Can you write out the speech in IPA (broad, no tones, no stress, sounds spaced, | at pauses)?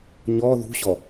ɲ ɔ ð ṳ ɕ ɔ